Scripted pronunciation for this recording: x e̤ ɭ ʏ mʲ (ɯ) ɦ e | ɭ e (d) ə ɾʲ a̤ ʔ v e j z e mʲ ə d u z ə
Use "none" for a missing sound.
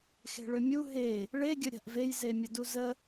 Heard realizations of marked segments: u, ɡʲ

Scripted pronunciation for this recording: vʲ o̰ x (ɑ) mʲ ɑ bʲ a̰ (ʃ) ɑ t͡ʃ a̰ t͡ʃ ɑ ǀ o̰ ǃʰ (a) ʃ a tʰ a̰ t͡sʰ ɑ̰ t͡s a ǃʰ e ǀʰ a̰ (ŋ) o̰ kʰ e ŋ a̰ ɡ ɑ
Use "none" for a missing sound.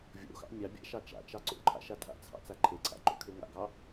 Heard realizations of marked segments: ɑ̰, ʃ, a̰, ǃ

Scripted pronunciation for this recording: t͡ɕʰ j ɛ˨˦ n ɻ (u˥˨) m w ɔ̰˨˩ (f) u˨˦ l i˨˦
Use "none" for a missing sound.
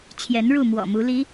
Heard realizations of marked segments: u˥˨, m

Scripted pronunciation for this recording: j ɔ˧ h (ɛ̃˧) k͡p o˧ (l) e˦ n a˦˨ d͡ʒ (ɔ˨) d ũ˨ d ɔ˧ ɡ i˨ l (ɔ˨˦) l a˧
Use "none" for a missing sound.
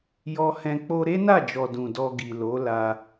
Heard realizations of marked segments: ɛ̃˧, ɾ, ɔ˨, o˨˦

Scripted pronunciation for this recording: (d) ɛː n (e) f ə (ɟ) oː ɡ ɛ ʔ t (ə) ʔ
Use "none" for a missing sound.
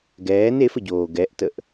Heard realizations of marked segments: ɡ, e, ɟ, ə

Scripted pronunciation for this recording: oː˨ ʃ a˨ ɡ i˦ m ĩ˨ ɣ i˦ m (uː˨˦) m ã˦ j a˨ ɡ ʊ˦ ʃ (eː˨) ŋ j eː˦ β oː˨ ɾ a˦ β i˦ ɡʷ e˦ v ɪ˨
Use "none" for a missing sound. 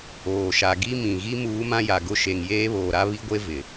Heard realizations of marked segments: uː˨˦, e˨

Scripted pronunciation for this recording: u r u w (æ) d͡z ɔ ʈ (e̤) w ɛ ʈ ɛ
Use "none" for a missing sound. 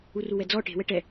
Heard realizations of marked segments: ɛ, e̤

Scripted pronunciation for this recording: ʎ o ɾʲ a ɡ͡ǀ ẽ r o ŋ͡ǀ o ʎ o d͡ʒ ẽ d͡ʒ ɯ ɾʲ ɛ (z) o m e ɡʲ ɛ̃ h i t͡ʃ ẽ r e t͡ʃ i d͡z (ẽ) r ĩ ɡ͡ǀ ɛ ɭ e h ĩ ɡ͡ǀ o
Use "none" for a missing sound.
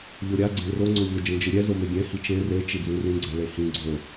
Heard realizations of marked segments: z, ĩ

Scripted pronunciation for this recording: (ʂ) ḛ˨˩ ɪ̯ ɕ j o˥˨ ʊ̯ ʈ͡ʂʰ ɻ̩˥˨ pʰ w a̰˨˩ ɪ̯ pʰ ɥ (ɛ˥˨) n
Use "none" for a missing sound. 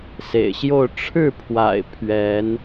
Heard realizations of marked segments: s, ɛ˨˦

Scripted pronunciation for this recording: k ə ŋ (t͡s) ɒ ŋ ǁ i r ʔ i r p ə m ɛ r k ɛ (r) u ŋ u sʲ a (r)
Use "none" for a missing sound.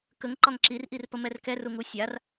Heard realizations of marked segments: ǃ, r, r

